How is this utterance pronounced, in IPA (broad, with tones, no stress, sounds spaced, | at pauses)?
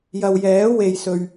j ɐ˨ w j ɛː˨˥ w e˨ j s ɵ˨ ɥ